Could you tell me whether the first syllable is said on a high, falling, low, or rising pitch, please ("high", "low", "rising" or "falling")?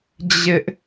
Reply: high